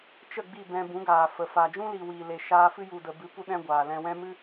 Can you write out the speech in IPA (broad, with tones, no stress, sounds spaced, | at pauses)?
t͡ʃ ə˦˨ ɡ͡b i˦˨ b ɛ̃˧ b ũ˨˦ ɡ aː˨ f ə˨ f a˨ d͡ʒ ũ˦ l iː˨ w iː˨ l e˨ ʃ aː˧ f ɨ˦ j u˨ d ə˨ b ɨ˨˦ p u˧ ɗ ɛ̃˦ ɡʷ aː˨ l ɛ̃˧ w ɛ̃˦ m ɨ˦